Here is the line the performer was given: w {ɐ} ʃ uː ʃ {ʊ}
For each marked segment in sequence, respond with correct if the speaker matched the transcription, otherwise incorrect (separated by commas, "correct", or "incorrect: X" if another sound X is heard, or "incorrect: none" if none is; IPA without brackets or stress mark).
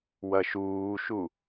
correct, incorrect: u